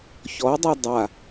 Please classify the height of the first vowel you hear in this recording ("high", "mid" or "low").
mid